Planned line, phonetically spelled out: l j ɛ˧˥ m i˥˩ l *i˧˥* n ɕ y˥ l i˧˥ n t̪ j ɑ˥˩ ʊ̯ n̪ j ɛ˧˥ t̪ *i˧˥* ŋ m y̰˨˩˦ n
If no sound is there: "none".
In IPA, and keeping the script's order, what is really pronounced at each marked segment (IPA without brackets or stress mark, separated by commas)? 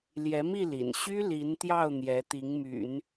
ḭ˨˩, i˧˥